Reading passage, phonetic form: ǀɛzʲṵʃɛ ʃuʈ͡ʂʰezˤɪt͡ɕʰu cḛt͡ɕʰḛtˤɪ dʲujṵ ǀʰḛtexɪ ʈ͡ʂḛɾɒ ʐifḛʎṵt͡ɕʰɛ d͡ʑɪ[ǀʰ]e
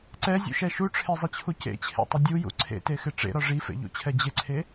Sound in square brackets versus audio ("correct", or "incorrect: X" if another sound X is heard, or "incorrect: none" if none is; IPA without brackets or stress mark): correct